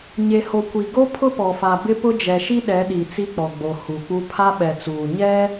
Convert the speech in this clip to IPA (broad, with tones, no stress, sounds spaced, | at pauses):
ɲ e˨ h o˨ kʷ i˨ ɡ o˦ pʰ ʊ˦ p ɔ˨ f a˨ b ɪ˦ p ʊ˦ d͡ʒ ɛ˨ ʃ i˦ ɗ ɛ˨˦ ɗ i˨ t͡s i˦ k͡p ɔ˨ ɡ͡b o˨ h u˨ k͡p u˦ pʰ a˦ ɓ ɛ˨ t͡s uː˨ ɲ ɛ˦